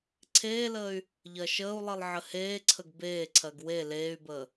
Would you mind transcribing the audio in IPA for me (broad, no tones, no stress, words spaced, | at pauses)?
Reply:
ǀʰeːləːy̯ | ʎɜʃəːu̯lˠilˠ ʕəheːǀʰəɡ beːǀʰɜɡ we leːy̯bəː